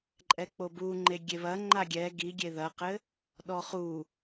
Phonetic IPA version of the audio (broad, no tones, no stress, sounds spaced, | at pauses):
ǃʼ ɛ k͡p o b u ŋ͡ǃ e ɡʲ e β ɐ ŋ͡ǃ a ɡʲ ɛ ɡ i ɡʲ e ð ɐ q ɘ | ɗ ɔ χ u